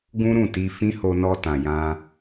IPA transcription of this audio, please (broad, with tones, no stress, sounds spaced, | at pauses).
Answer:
ɡ ũ˦ ɾ ũ˦˨ t i˧ f ĩ˦ h o˧ n ɔ˧ t ã˨ j ã˧